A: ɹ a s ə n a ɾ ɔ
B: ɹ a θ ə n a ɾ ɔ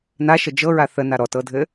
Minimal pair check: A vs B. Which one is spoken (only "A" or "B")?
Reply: B